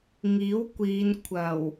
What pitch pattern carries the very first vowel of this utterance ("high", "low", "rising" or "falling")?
rising